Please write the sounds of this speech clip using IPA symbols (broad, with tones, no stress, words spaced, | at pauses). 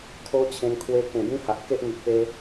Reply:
kʰo˦t͡ɕʰẽ˧n kʰwe˧kẽ˨˩ bĩ˦ha˨ʔke˦ʔŋi˨ʔ pe˧